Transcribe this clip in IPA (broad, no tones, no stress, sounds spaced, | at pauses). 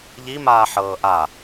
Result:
ʎ i m aː ħ ɤː ʔ a